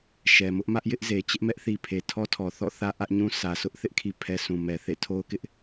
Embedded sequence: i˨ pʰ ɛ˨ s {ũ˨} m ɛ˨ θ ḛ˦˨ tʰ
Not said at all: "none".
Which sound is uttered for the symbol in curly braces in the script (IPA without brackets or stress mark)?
ũ˨